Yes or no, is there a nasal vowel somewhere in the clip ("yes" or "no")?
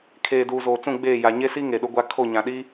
yes